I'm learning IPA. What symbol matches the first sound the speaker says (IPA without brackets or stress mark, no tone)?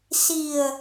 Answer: s